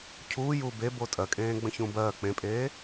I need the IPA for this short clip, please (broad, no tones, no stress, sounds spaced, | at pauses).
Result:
cʰ uː j uː b e b o tʼ ɜ kʼ ẽː ɡ͡b ə̃ ç ũ b ɜː k͡p ẽ pʼ eː